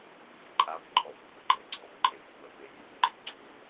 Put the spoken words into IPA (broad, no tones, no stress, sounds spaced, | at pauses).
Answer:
m i f ǃʼ a f ǃʼ ɔ f kʷʼ ə ɡ͡ǃ ɛ ɡ͡ǀ ɔ p ǃʼ e f kʷ œ p e j y ŋ ɡ͡ǃ i ɡ͡ǀ u